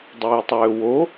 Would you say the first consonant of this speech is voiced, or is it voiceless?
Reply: voiced